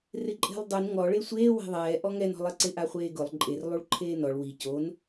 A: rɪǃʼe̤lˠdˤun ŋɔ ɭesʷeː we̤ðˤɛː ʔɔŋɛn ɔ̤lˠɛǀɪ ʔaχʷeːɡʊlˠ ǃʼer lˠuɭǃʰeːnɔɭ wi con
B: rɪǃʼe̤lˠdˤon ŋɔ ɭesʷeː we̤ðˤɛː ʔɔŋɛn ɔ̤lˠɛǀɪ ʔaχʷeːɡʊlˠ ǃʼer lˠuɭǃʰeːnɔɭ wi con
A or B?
A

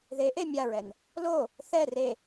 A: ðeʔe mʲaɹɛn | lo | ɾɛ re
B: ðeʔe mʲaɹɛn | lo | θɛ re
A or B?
B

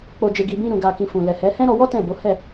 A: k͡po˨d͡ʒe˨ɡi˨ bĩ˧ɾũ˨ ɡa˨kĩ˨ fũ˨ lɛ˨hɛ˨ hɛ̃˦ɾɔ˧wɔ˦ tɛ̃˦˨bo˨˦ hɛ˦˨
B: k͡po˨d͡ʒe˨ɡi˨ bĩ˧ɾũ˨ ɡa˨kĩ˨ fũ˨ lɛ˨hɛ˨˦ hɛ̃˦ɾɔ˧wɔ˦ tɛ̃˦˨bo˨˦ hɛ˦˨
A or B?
B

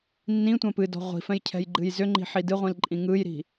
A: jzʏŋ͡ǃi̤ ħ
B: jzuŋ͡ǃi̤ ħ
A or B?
A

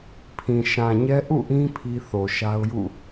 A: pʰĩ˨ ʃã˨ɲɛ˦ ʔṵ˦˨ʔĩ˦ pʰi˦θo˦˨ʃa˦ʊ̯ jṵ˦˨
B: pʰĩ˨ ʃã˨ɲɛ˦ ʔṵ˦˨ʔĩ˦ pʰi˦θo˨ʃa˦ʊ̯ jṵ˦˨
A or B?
B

